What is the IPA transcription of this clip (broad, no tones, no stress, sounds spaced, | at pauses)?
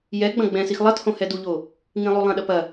j ɛ ɡ͡b ɐ̃ ɡ͡b ɛ̃ s i x lˠ ɐ t h õ h ɛ d u ʎ o | ŋ ĩ lˠ u lˠ ɐ̃ ɗ ɐ p ɐ